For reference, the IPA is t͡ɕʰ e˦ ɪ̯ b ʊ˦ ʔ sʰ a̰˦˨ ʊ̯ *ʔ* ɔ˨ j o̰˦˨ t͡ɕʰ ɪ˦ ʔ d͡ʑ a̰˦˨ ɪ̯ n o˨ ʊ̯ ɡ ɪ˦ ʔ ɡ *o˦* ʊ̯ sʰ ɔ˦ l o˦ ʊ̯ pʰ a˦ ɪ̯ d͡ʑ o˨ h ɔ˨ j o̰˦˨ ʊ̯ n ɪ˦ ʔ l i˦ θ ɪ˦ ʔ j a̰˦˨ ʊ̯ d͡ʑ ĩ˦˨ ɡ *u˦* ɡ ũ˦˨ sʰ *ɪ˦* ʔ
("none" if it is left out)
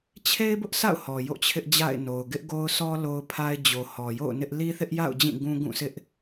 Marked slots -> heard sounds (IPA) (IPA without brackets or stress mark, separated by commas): h, o˦, ũ˦, ɪ˦